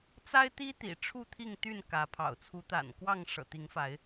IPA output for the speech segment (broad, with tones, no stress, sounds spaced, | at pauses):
t͡s a˦ ɪ̯ t̪ i˦ t̪ ḭ˨˩ ʈ͡ʂʰ u˥˨ t̪ʰ i˥˨ ŋ t̪ y˥˨ n k ä˨˦ pʰ ɑ̰˨˩ ʊ̯ t͡sʰ u˨˦ t̪ a̰˨˩ n k w ɑ˥˨ ŋ ʂ ɤ̰˨˩ t̪ i˨˦ ŋ f a˨˦ ɪ̯